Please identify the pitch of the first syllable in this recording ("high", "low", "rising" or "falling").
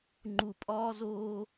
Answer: low